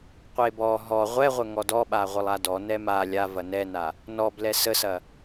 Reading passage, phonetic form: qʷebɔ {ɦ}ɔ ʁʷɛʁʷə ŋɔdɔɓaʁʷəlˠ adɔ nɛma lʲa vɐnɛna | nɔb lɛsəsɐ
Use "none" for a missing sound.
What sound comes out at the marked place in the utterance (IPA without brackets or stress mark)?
ɦ